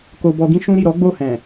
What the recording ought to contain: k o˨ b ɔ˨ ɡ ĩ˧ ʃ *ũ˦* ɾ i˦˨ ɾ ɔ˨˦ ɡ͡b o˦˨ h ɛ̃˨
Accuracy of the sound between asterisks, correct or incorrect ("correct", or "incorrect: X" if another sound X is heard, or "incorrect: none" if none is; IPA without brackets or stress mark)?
correct